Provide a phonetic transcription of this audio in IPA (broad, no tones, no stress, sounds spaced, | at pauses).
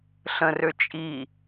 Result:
ɬ ə̃ r ø t͡ʃʼ i